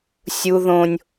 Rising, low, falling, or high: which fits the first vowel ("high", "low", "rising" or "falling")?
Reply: high